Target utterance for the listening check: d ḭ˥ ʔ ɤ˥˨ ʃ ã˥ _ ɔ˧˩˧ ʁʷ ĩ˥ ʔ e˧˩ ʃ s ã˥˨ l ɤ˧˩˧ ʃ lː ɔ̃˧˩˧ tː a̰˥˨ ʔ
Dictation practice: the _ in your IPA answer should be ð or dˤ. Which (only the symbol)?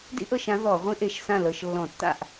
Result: ð